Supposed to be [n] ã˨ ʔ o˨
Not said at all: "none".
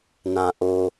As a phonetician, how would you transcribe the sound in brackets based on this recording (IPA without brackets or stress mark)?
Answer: n